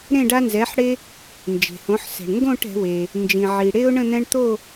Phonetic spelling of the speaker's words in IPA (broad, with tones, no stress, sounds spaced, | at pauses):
ɾ ẽ˥˨ ɖ a˦ n z ɛ˩˥ ħ ɽ e˦ | n d͡ʒ e̤˩ h õ˩˥ ħ s ɛ̤˩ ɳ ŋ ɡ õ˥˨ ʈ ɛ̤˩˥ w e˩ | n d͡ʒ ĩ˩ ʕ i˩ ɽ e˦ ʊ̯ ɳ ə̃˥˨ n̪ ɛ̃˦ ɳ t̪ o˥˨